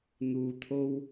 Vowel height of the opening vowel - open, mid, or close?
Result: close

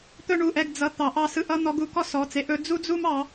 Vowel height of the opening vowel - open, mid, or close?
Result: mid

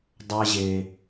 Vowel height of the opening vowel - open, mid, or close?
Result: open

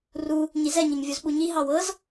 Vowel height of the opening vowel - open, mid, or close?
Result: close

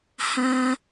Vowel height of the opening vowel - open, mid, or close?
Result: open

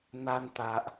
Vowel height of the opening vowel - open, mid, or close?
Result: open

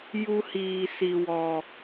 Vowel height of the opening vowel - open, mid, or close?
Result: close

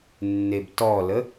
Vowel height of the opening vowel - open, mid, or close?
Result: mid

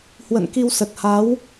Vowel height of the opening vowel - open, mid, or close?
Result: mid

